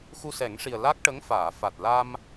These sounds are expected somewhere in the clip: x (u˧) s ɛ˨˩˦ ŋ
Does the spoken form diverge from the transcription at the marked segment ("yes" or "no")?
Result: no